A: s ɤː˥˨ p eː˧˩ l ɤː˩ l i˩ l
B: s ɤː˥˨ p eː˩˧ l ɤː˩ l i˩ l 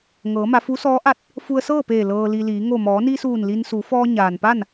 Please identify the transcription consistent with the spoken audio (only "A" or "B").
A